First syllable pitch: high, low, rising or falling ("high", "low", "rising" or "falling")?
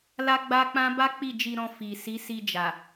high